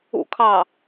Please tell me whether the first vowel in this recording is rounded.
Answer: yes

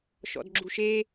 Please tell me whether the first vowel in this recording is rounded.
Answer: yes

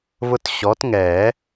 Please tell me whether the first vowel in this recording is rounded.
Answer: yes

